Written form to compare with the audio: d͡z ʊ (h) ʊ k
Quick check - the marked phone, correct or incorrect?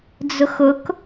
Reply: incorrect